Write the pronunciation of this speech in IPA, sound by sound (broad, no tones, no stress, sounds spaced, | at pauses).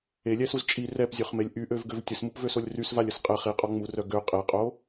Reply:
e lʲ ɛ s u z t͡ʃʼ i r ɛ p zʲ ø χ m e lʲ ʔ y ʔ ø v ɡ ø v tʲ ə s m u p v ø s o lʲ r y s v a lʲ ə s qʼ ɛ χ i qʼ ɔ ŋ͡m u r œ ɡ ø qʼ e qʼ o